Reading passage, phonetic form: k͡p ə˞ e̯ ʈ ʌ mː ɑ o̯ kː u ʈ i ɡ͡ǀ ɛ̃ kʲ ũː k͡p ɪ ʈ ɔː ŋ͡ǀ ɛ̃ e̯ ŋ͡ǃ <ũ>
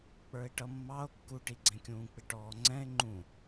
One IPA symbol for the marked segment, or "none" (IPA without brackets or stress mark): ũ